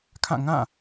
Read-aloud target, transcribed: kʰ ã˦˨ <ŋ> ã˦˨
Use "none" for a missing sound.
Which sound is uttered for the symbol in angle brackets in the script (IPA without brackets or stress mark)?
ŋ